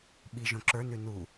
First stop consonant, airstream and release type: implosive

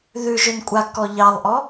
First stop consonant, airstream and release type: ejective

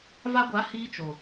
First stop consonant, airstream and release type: plain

